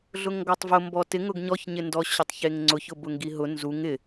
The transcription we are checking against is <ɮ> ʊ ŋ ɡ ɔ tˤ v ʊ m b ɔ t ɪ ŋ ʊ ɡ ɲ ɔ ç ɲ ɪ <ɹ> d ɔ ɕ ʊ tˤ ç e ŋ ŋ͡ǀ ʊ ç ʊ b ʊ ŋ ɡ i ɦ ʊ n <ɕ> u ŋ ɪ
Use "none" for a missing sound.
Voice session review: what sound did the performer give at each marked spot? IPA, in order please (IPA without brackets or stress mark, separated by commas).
ɮ, n, z